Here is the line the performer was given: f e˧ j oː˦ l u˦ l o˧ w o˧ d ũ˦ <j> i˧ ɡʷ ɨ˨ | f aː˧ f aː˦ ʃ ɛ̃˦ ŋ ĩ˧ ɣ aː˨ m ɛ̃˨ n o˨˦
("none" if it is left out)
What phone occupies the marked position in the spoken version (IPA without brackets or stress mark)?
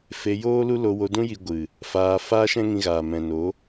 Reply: j